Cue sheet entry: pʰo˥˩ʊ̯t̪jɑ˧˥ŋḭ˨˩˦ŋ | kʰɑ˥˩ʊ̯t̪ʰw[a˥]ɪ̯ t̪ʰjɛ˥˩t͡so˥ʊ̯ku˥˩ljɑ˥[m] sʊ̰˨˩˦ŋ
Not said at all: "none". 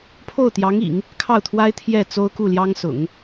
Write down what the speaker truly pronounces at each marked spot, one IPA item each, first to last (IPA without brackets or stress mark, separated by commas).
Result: a˥, ŋ